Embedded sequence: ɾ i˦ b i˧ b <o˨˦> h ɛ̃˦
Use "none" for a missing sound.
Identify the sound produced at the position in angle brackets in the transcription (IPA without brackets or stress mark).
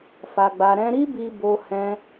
o˧